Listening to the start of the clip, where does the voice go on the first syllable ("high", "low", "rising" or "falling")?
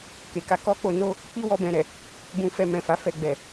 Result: low